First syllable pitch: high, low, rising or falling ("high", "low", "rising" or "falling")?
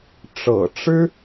low